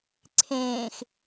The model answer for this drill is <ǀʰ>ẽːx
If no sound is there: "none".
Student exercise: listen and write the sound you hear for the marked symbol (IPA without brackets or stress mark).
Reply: ǀʰ